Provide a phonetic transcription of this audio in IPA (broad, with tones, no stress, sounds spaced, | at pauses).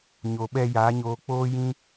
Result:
ɲ o˨ ɓ ɛ˧ j aː˨˦ ɲ oː˧ k͡p oː˦ j ĩ˦